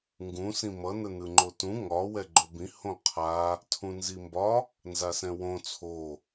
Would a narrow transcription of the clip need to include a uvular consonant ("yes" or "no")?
yes